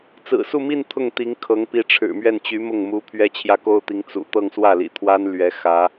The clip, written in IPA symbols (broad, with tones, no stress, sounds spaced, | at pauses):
t͡s ɹ̩˨˩ s u˥˧ m i˥˧ n t̪ʰ ʊ˥˩ ŋ t̪ i˧˥ ŋ kʰ ɤ˧˥ ŋ p i˧˥ ʈ͡ʂʰ ɻ̩˨˩ m ɥ ɛ˥˩ n t͡ɕ y˧˥ m ʊ˥˩ ŋ m u˧˥ pʰ ɥ ɛ˥ t͡ɕʰ j ä˥ k o˥ ʊ̯ t̪ i˧˥ ŋ t͡s ṵ˨˩ t̪ ɤ˥˧ ŋ s w ä˥˩ l ḭ˨˩ t̪ʰ w a˥ n l ɥ ɛ˧˥ x ä˧˥